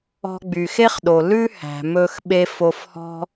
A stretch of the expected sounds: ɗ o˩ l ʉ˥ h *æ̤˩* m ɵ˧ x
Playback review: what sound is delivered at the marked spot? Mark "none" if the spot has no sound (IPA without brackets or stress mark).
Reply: æ̤˩